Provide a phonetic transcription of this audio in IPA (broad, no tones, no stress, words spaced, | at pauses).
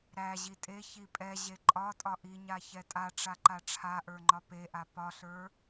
ɾæ ʑitʼeçi pʼɛ ʑeǃʼɒtʼɒ ʔiɲa çɛtʼaʈ͡ʂa ǃaʈ͡ʂʰaʔə˞ ŋ͡ǃɒpeʔa pɒɬə˞